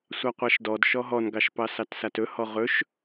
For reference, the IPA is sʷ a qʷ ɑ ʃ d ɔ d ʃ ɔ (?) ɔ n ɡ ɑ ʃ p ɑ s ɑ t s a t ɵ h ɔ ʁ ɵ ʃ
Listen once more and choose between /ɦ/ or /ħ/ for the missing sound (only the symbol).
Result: ɦ